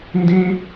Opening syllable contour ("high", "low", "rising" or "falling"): high